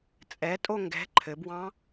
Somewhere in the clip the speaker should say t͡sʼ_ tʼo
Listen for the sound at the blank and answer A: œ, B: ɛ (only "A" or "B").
B